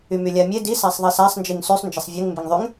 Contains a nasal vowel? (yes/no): no